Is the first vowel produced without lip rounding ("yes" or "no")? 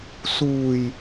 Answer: no